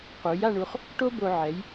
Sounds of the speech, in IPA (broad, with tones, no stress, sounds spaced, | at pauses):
q u˩˧ j a˥˧ ɳ u˧ χ | ʈ o˥ b o˧ ʕ ɛ˩˧ j